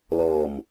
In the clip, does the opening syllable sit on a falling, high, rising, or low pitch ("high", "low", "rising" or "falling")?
low